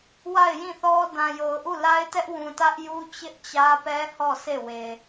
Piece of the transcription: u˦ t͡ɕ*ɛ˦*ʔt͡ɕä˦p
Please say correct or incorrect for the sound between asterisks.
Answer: incorrect